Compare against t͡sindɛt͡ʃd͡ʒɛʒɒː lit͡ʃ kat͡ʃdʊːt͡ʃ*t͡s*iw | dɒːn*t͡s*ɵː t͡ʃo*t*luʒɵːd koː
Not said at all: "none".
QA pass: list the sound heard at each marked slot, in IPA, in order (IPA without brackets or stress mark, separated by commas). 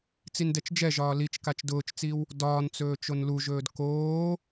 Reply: t͡s, t͡s, n